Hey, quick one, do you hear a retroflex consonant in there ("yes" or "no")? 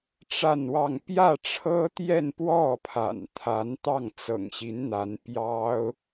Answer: yes